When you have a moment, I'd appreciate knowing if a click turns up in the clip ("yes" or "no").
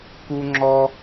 yes